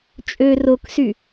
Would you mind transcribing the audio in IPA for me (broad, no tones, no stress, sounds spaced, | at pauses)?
t͡ʃʼ ø r o k s y